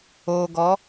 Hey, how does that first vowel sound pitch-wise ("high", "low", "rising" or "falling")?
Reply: low